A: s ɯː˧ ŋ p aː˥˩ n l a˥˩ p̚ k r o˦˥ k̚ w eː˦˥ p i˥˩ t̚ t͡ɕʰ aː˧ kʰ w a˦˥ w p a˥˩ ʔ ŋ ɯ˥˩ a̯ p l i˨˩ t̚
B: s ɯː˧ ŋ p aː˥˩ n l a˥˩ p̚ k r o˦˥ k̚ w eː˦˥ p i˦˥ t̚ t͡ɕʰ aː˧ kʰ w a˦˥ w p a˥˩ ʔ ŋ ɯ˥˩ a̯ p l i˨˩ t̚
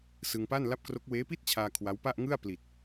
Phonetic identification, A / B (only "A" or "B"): A